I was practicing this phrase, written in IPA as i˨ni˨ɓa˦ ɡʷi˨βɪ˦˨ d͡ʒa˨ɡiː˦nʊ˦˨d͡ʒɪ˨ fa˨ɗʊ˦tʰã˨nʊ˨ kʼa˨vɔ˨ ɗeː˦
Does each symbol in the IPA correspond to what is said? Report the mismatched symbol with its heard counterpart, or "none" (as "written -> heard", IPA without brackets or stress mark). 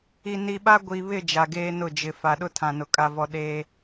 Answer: iː˦ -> eː˦